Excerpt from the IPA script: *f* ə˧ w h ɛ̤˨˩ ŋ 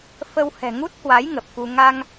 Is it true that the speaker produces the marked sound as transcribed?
yes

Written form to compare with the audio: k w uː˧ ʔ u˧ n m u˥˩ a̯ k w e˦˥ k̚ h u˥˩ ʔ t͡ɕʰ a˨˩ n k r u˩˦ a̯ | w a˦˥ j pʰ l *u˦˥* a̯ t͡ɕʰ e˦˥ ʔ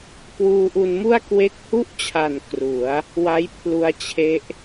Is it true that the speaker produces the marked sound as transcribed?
no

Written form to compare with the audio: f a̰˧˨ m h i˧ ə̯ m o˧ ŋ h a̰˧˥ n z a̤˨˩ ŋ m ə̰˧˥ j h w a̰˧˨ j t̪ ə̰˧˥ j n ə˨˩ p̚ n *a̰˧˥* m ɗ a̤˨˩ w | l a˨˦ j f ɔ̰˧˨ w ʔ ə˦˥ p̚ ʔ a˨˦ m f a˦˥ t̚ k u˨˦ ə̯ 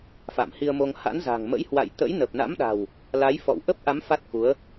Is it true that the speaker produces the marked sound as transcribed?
yes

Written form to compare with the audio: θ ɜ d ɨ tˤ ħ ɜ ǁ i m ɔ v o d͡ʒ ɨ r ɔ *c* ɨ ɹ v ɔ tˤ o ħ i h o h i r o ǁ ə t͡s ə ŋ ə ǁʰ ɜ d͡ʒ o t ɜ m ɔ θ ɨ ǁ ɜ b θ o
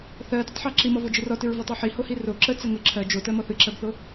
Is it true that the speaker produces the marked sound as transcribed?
no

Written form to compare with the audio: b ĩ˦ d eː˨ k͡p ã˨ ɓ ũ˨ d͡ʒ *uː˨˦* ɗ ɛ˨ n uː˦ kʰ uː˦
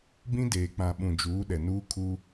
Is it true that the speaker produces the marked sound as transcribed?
yes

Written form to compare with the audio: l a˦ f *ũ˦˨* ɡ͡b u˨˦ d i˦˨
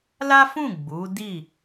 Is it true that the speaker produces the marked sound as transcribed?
yes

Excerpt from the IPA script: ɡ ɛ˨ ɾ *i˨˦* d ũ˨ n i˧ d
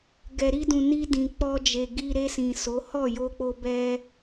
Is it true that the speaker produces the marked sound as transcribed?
no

